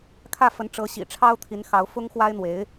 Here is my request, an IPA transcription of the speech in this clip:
kʰ ä˥˩ f ə˧˥ n ʈ͡ʂ ɤ˧˥ ɕ ḭ˨˩ ʈ͡ʂʰ ɑ˥ ʊ̯ t̪ʰ i˧˥ n x ɑ˧˥ ʊ̯ f ʊ˥ ŋ x w a˥ ɪ̯ n̪ w e˧˥ ɪ̯

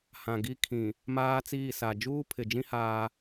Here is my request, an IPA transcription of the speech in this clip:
h ã˨ ɡ i˦ kʰ ĩ˨ | m aː˦ t͡s iː˦˨ s a˨ d͡ʒ uː˦ pʰ ɪ˨ d͡ʒ ĩ˦ h aː˦

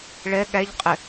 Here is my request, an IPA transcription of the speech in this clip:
ɭ ɛ ɠ æ ʎ qʼ ɪ

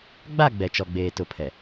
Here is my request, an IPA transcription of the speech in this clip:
ɡ͡b a˦˨ ɡ͡b ɛ˨ t͡ʃ ɔ˨ ɡ͡b eː˨ t ʊ˨ pʰ ɛ˨

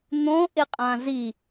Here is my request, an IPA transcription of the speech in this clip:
n̪ õ ʔ ɪ qʼ ã z i

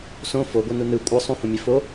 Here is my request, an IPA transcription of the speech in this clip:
s õ f o ɡʷ ɛ n u n ɯ kʷʼ ɯ sˤ ũ h õ mʲ e f o

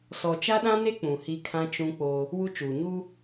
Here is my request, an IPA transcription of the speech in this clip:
s ɔ˨ t͡ʃ a˦ ɗ ã˦ n e˦ k͡p ũ˨ h i˦ kʰ ã˦ t͡ʃ ũ˦ k͡p o˦ | w u˦ t͡ʃ uː˨ ɲ u˦

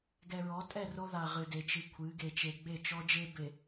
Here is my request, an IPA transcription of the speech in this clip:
ɡ ɛ˨ ɹ ɔ˨˦ tʼ ɛ˦˨ r o˦ ð a˨ ʁ ɨ˨ d e˨ t͡ʃ ɨ˨ kʷʰ ɨ˨˦ ɡ e˨ t͡ʃ e˨ ɡ͡b e˦˨ t͡ʃ ɔ˦ d͡ʒ e˦ b e˨

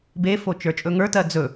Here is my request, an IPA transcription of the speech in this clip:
b e f o t͡ʃ ə˞ t͡ʃʼ ɵ ŋ ə˞ t ɜ d͡z ɵ

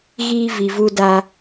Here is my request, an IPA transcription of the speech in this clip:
ɣ iː˦ v i˨ v u˦ d a˦

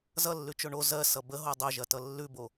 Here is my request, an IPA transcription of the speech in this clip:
z ʌ lː ʉ t͡ʃ o ɳ o z ɜ s ʌ b ə ɦ o dˤ o ʒ ɐ t ʌ lː ʉ b o

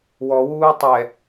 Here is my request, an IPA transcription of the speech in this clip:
w ɔ w uː tˤ ɛ

